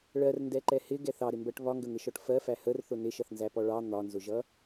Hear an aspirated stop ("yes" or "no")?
no